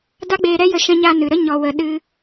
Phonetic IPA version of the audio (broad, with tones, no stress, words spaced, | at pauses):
da˦ɡ͡beː˧ɾɛ˦jə˧ ʃɛ̃˧ɲa˧ nɨ˨ɾə˦ ɲɔ˧wə˧ ɗɨ˧